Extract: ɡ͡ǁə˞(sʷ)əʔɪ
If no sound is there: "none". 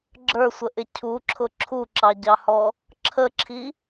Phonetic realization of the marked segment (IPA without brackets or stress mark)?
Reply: sʷ